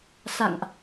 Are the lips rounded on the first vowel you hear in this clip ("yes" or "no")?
no